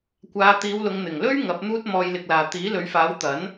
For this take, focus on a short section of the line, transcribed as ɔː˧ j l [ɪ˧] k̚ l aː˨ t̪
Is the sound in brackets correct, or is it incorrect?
correct